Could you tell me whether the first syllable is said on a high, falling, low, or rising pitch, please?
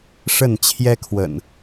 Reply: falling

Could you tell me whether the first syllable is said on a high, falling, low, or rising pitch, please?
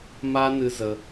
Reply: high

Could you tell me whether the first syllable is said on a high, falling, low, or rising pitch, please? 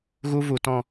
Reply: high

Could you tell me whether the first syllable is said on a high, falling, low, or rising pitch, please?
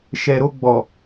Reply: low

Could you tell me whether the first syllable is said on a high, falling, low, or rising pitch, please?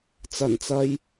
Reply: low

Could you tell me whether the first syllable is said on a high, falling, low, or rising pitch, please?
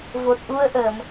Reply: low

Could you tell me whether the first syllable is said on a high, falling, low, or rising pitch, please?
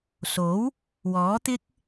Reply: rising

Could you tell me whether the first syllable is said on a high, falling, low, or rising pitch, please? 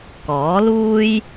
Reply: rising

